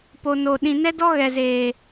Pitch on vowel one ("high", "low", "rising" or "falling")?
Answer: low